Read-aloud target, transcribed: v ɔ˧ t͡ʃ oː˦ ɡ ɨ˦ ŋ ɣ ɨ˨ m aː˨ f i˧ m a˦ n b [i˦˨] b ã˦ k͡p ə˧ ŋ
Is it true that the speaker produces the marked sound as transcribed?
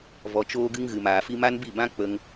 yes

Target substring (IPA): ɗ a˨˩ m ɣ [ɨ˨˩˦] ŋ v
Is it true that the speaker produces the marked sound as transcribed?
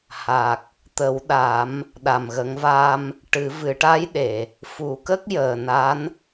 no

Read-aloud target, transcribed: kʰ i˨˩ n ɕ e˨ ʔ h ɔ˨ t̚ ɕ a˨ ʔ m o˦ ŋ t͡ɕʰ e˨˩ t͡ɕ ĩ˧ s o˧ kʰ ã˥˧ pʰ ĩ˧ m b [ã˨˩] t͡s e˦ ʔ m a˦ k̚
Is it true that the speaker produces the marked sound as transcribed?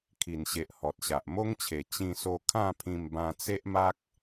no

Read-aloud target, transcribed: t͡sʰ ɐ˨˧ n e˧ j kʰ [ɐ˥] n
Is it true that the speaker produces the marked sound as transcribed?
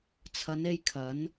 no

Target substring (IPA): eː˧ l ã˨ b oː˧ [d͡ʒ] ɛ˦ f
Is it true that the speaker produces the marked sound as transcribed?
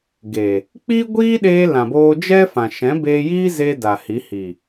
yes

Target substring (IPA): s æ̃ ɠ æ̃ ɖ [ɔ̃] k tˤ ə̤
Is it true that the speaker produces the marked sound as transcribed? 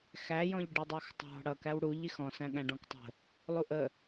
yes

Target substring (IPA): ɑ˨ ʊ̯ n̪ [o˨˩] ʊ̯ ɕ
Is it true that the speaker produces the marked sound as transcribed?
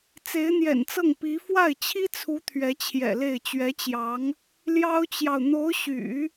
no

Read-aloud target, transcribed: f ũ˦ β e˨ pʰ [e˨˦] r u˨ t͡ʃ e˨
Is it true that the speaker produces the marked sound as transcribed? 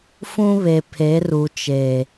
yes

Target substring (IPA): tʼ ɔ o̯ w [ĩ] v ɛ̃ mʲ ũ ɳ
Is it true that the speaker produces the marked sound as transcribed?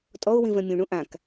yes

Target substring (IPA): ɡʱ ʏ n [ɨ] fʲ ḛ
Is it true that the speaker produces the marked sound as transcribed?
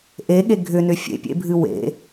no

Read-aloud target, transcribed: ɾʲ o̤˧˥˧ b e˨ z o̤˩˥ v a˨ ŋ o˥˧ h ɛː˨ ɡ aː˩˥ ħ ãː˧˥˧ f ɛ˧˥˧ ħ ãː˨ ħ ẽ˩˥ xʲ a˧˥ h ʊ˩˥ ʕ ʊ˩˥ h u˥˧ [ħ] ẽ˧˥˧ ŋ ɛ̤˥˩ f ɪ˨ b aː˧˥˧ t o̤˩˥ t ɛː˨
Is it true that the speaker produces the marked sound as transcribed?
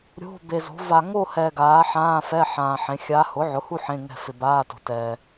yes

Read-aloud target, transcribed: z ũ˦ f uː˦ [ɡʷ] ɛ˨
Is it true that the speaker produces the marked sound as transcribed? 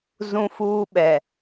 no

